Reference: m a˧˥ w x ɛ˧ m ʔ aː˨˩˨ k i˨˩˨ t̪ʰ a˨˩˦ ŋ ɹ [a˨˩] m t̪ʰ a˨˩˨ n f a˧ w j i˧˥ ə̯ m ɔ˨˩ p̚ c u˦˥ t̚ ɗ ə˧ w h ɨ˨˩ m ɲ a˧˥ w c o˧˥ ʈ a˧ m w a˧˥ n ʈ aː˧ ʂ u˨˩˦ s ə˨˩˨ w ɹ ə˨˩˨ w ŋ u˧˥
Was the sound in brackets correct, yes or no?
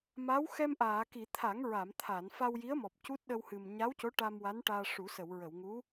no